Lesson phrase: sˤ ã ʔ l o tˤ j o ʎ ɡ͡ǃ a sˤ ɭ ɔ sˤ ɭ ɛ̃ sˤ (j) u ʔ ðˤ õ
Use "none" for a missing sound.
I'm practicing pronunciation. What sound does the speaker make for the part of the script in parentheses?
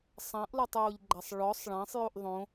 j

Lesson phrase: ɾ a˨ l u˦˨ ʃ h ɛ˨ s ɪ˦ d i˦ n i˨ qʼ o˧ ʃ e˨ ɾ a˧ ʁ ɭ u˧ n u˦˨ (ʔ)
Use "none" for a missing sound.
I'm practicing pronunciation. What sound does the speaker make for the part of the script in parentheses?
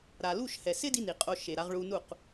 q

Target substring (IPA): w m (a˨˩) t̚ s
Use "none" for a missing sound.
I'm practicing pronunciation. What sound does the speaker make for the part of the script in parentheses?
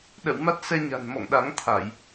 a˦˥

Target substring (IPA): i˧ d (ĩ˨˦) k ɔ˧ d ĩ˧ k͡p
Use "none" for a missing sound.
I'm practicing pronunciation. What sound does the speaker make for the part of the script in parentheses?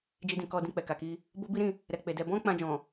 ĩ˨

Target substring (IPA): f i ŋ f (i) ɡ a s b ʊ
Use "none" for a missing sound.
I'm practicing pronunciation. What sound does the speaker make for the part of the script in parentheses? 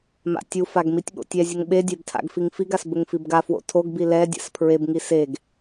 i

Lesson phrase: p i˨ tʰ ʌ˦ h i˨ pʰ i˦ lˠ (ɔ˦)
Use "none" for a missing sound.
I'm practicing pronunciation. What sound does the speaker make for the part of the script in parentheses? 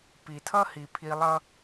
ʌ˦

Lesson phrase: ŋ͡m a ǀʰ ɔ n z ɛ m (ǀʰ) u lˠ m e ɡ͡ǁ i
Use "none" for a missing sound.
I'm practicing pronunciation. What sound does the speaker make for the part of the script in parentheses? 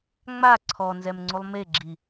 ŋ͡ǀ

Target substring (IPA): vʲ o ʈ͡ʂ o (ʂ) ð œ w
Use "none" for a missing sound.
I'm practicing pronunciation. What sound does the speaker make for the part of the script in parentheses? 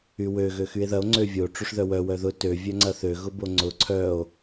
ʂ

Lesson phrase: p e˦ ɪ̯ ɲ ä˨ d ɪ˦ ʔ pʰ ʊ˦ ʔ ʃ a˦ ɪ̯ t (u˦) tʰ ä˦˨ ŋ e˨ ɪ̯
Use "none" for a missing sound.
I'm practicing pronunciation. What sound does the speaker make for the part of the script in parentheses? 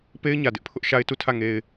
u˦˨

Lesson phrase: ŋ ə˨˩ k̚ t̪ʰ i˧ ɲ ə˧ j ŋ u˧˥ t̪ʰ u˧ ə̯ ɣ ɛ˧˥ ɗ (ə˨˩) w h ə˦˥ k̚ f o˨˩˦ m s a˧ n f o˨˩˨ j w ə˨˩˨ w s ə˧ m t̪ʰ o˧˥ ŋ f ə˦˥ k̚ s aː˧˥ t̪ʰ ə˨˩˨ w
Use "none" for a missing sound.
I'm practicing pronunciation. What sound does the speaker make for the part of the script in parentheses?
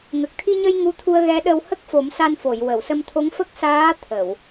ə˧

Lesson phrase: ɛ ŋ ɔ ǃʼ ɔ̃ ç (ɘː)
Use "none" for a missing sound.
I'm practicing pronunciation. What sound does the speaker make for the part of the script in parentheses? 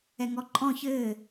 ɘː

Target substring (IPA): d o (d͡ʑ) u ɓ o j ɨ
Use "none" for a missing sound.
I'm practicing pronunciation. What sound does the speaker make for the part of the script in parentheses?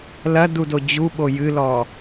d͡ʑ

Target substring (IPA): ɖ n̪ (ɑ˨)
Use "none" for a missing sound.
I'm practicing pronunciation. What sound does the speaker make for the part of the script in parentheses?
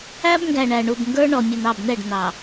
ɑ˨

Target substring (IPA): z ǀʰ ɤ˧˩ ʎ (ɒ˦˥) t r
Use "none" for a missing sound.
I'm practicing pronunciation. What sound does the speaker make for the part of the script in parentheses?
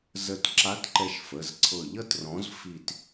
ʌ˦˥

